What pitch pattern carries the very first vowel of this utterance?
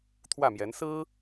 falling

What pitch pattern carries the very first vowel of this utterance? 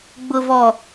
low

